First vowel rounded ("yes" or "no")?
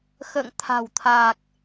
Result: no